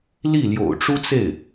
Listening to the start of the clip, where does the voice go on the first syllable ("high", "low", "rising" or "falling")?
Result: falling